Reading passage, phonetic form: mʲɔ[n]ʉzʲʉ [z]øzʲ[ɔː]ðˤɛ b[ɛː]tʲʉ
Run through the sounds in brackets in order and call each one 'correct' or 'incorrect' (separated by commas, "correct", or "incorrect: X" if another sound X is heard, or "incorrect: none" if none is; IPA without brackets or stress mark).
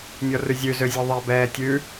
incorrect: r, correct, incorrect: ɔ, correct